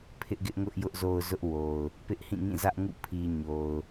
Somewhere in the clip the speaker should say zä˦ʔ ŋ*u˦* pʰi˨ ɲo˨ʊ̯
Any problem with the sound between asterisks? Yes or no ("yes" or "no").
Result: yes